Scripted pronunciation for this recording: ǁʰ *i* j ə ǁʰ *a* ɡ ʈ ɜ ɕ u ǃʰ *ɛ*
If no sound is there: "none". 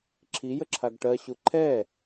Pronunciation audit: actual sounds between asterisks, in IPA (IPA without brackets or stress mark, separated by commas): i, a, ɛ